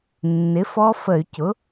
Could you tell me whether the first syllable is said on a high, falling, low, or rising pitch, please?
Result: rising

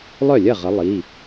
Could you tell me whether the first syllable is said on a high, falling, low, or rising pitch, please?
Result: falling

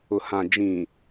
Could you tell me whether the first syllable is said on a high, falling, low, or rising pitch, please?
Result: low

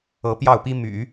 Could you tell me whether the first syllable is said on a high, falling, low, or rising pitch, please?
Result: rising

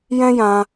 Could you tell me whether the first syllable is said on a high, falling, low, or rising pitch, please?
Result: high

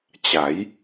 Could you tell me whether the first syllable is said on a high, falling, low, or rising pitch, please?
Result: rising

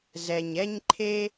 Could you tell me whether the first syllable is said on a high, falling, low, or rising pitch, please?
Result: low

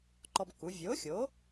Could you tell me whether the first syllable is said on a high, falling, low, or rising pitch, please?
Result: high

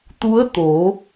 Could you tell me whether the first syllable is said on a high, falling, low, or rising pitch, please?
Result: rising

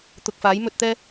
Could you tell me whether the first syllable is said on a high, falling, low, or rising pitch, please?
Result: low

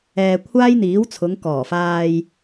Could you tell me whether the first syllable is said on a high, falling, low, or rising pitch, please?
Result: low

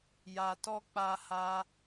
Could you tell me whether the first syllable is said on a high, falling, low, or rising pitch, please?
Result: low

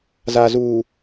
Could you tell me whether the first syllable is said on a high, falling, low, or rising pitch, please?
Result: low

